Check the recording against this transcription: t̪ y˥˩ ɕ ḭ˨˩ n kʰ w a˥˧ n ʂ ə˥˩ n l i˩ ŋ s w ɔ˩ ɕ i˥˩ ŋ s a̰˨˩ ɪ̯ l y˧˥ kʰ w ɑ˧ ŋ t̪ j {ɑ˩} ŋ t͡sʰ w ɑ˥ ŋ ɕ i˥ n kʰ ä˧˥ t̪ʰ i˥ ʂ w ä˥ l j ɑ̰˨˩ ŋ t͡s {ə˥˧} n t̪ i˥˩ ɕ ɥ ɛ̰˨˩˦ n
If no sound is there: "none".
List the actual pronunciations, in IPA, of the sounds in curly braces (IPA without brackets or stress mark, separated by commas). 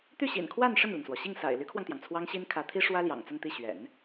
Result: ɑ˩, ə˥˧